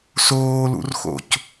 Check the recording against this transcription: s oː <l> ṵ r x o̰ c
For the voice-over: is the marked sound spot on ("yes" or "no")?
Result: yes